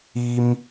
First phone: i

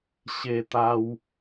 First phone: ɕ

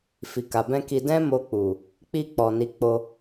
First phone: f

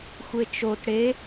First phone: xʷ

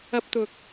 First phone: ɐ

